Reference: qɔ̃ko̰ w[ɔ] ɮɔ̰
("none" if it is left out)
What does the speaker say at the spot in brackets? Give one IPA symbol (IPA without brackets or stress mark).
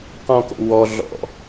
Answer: ɔ